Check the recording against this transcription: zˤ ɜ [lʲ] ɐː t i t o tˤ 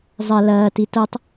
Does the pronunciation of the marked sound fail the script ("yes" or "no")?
yes